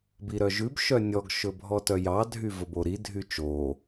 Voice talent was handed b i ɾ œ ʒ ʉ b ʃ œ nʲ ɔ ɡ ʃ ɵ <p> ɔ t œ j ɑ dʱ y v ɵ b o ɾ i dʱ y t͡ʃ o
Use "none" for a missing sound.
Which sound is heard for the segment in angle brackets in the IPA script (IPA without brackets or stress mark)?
bʱ